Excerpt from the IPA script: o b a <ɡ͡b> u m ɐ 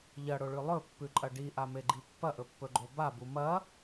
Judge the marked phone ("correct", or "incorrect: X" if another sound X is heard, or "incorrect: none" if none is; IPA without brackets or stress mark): incorrect: b